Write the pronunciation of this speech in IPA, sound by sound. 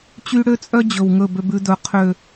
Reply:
t͡ɕ y˦ ɽ ø˦ t͡sʼ œ˦ d͡ʑ ɵ˨ w ŋ ɵ˦˨ b ø˦ b ʉ˦ d ɵ˨ qʰ ø˨

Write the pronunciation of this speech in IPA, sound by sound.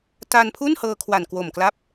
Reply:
t a˧ n pʰ u˥˩ n h ɤː˧ kʰ w a˨˩ n k w o˨˩ m k l a˦˥ p̚

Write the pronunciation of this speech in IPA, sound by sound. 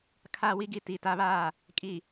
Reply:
kʰ a˨ w i˦ ɡ i˨ t i˨ t a˦ β aː˦˨ | kʼ i˨

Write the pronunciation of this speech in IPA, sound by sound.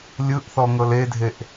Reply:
lʲ ɯ ʔ θ ɔ ŋ ɤ l e dʱ e ʔ

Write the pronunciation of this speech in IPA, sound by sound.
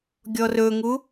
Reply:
ɡʲ ɔ r ɵ ŋ u

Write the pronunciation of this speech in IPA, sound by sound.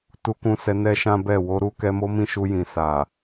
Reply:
t u˧ k ũ˧ s ɛ˧ n ɛ˦ ʃ ã˦ b ɛ˦˨ w o˧ ɾ u˧ k ɛ˧ m o˦ m ĩ˦ ʃ u˧ j ĩ˨ s a˨

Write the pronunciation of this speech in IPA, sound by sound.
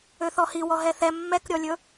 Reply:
ø θ ɔ h i w ɔ ɦ ɛ θ ɛ mː ɛ k ɾʲ ɔ lʲ ɵ

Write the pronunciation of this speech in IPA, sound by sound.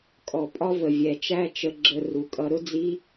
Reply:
kʼ ɔ˧ pʼ ɒ˦ v ə˨ vʲ ɛ˨ t͡ʃ æ˦ t͡ʃ ə˧ ɡ͡ǁ ə˧ r u˨ kʼ ʌ˧ ɾ ʊ˦ d͡z i˦

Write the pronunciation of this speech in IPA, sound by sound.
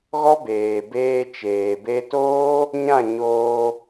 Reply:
ɣ ɔ˦ b eː˨ b eː˧ t͡ʃ eː˨ b e˧ t oː˦ | ɲ ã˦˨ ɲ oː˧

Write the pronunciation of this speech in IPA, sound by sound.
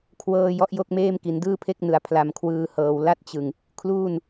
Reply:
kʰ w ɤː˧ j ɔ˦˥ ʔ j o˥˩ k̚ m eː˥˩ m k i˩˦ n d ɯː˥˩ pʰ e˥˩ k̚ n ɯ˨˩ a̯ pʰ l a˧ m kʰ w ɯː˧ h ɤː˧ w l a˥˩ t̚ t͡ɕ ɯ˧ ŋ | kʰ l uː˥˩ n

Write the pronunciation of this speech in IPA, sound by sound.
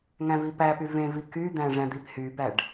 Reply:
ŋ æ̃ v i p æ p y v ẽ v i k y d̪ æ̃ ʐ æ̃ d̪ i p h y b æ ɖ

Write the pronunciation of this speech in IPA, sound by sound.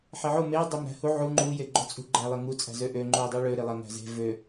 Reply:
ħ e ʕ o m e dˤ o m ɾ æ̤ h u ʕ u ŋ͡ǃ u j e ɡ͡ǃ o t͡sʼ ṳ ɡ͡ǃ æ lˠ e ŋ u t͡sʼ æ̤ z ø ʔ ø ŋ͡ǃ u ɪ̯ dˤ o ɭ ø ɾ e lˠ ɐ ŋ æ̤ z e̤ v ø

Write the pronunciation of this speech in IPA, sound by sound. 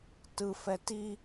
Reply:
t ɯ f ɛ t i

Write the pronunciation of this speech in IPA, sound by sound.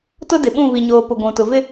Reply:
t ʊ˦ d ɪ˨ ɓ ũ˦˨ β i˨ ɲ oː˨ p ʊ˨ ɡʷ ũ˨ t ʊ˨ v ɪ˦

